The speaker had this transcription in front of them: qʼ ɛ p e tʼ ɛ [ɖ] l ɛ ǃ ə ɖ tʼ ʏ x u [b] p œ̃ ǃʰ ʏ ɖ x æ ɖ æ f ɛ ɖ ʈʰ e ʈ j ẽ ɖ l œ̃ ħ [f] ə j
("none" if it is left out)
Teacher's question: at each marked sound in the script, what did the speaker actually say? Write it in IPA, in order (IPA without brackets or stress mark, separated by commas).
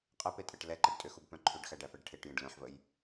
ʈ, b, v